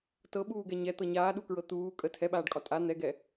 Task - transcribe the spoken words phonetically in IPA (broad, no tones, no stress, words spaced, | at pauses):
tɤɓuːɡɛ ɲɛt̪ɤ ɲaːɗukɹɤ t̪uː kʼə tʰɛɓaːɖkʼɒ tʼa n̪ɛɡɛ